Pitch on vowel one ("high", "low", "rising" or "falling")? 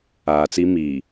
low